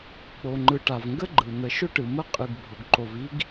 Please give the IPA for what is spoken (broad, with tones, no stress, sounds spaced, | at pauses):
k͡p o˨ ŋ͡ǃ ɯ˨ ʈ a˨ v ŋ ɡ ə˦ ɡ͡ǃ ɯ˨ n̪ ə˨ ʃ ʊ˦ ʈ ɯ˨ m ə˦ qʼ ɯ˨ ɡ bʱ ʊ˨ ɡ ǃ o˨ v i˦ ɡ